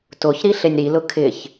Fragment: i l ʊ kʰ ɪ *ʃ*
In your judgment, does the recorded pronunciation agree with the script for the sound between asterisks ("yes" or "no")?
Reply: no